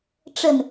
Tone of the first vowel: low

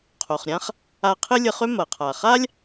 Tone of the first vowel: low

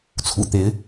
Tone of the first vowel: low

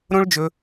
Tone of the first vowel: high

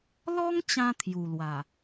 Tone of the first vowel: high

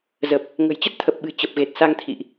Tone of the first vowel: low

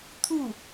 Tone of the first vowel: falling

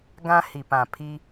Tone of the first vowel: high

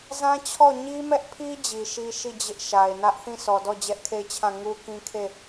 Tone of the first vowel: high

